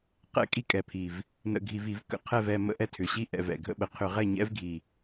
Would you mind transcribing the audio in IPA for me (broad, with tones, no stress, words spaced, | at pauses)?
qɛ̰˦˥ kʼi˥˨kʼɛ˨˩pʰi˨˩v | nə̰˧˩˧ɡʱi˧˩˧vi˧˩˧v kə̰˨˩ qʰɛ˥˨vɛ˥˨ mə̰˥˨ʔɛ˥˨tʰʏ˨˩ɕi˥˨ ʔɛ̰˧˩˧vɛ̰˨˩ɡʱə̰˥˨ɓə˧˩˧ qʰʏ˧˩˧ ʁɛ˥˨ɲɛ̰˦˥vɡʱi˨˩